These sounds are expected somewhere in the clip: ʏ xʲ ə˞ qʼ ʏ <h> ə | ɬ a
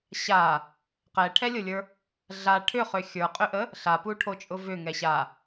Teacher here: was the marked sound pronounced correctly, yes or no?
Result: no